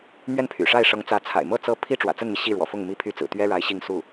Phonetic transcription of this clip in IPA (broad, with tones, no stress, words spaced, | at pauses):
mɥɛ˥˩npʰy̰˨˩ʂa˥˩ɪ̯ʂɤ˧˥ŋ t͡sä˧˥t͡sʰa̰˨˩ɪ̯ mɤ˥˩ t͡sɤ˥ pʰi˥ʈ͡ʂwä̰˨˩t͡sə˥˩nmi˩ ɕi˥˩ɻwɔ̰˨˩fʊ˥˩ŋ mi˥pʰy˥ t͡sɹ̩˨˩ t̪ɥɛ˥ɻa˧˥ɪ̯ ɕi˥˧ŋsu˥˩